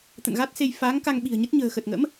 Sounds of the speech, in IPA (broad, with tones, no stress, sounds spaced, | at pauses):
t̪ ə̰˧˨ n ɣ a˦˥ t̚ s e˧ j f aː˨˦ ŋ k a˧ ŋ ɓ i̤˨˩ ə̯ ɲ ə˦˥ t̚ ɲ ə̤ː˨˩ x ə˨˩ t̚ ŋ ə̰˧˥ m